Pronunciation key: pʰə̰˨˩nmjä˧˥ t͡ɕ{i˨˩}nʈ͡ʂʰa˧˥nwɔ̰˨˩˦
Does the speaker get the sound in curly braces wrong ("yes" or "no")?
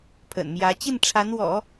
yes